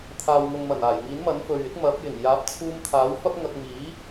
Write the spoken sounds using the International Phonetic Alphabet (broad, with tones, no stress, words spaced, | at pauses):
t̪ʰaː˨wŋʊ˨ŋmɐ˨˩naː˨˩j ŋiː˨˥nmɐ˨˥nfɵ˨ɥɪ˥k̚ mɐ˨˥p̚ jɪ˨˩ŋjaː˨˥p̚t͡sʰuː˧mt̪ʰaː˨˥w fɐ˥p̚ŋɐ˧k̚ miː˨˥